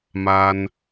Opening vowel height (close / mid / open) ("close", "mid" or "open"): open